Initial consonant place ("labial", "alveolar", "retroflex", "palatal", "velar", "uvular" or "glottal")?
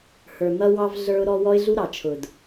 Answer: glottal